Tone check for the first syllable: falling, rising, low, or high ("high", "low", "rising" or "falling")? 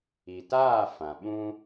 low